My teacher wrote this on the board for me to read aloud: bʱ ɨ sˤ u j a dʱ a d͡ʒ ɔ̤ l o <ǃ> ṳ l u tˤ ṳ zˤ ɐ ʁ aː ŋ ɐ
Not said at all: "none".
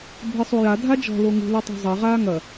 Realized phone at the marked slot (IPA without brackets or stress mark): ŋ